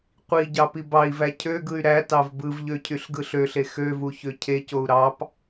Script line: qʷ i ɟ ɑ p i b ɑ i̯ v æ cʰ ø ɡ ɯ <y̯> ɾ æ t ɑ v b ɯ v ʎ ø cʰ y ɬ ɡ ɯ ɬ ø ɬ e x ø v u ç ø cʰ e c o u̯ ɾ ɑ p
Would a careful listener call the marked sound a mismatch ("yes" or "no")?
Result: no